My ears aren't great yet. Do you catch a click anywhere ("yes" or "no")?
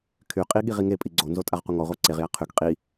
yes